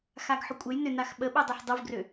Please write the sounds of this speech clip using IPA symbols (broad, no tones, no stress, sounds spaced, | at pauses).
x a ɡ ħ ʏ kʷʼ ɘ j n ʏ n a x ɓ ə ɓ i dˤ ø ħ dˤ u v ɡ r ø